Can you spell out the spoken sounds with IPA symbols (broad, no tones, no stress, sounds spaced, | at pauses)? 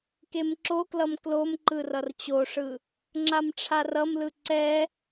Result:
k e m ǁ o k l ʌ m k l o m ǃ ɯ r ʌ r t͡ɕ o ʂ ɯ | ŋ͡ǁ a m ʈ͡ʂʰ a r ʌ m l ɯ ǀ ɛ